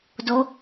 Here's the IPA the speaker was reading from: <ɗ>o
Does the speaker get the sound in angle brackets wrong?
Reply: yes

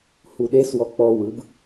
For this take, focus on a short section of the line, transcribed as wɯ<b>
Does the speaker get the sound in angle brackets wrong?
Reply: no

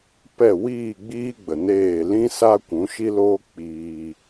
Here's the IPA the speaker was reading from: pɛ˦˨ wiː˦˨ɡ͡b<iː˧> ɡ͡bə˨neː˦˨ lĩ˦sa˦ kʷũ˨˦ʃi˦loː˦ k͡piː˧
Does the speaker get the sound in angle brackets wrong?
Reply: yes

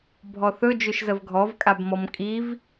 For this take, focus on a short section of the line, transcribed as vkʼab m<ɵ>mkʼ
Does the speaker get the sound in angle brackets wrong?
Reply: yes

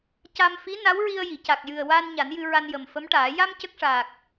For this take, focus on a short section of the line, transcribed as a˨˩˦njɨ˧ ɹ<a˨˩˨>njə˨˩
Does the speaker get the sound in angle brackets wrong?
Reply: yes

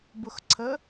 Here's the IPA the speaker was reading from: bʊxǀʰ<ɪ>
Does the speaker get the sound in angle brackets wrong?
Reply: yes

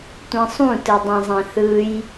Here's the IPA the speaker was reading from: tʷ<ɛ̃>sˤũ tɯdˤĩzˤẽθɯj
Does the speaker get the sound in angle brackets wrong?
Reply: yes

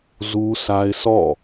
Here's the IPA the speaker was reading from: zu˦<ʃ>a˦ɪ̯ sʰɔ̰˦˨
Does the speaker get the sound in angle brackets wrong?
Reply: yes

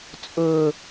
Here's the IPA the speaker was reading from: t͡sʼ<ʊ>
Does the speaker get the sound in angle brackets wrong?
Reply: no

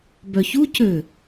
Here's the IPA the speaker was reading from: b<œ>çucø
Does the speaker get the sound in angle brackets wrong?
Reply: no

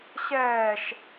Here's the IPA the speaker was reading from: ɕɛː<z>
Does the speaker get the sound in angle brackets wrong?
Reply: yes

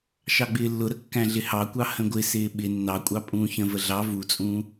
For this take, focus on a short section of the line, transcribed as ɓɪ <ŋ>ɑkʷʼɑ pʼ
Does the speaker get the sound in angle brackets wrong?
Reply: yes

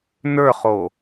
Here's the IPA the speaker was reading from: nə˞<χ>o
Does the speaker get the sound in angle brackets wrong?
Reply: no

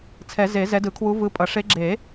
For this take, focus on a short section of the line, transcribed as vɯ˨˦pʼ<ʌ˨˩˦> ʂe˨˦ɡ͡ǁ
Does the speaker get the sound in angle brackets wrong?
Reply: no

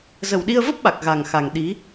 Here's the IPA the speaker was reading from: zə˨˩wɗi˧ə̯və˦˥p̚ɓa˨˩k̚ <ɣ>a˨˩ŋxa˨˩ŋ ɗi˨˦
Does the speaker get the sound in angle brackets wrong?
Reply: no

